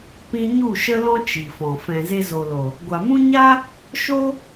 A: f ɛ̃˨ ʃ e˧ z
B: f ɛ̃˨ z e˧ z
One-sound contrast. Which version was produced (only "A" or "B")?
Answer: B